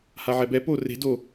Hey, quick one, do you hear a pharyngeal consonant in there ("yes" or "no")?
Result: yes